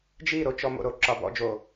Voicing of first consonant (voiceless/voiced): voiced